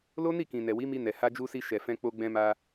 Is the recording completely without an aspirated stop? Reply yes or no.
yes